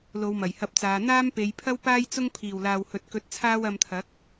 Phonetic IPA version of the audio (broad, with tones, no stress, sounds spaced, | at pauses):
l o˨˧ w m ɐ˨˩ j h ɐ˧ p̚ t͡s aː˨˧ n̪ aː˥ m p e˨˧ j pʰ ɐ˥ w p aː˥ j t͡s ʊ˥ ŋ pʰ iː˨˩ w l aː˨ w h ɵ˨ t̚ k ɵ˨˥ t̚ t͡sʰ aː˥ w ɐ˧ m t̪ʰ ɐ˨˥ k̚